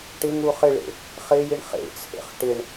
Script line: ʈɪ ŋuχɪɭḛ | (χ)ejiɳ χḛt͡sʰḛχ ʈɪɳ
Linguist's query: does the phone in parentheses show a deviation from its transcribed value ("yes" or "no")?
no